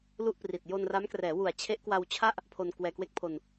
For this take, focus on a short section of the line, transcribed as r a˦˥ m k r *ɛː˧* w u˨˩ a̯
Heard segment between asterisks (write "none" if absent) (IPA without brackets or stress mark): ɛː˩˦